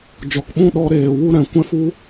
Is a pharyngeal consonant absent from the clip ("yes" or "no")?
yes